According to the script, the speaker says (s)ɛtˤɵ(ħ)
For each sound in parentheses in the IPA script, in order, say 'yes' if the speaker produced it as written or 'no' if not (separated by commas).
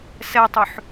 yes, yes